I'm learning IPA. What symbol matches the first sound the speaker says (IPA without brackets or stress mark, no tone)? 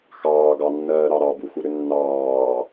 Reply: x